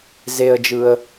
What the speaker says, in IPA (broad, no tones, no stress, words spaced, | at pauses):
zeə̯d͡ʒɯə̯